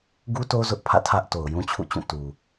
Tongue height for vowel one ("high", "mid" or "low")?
high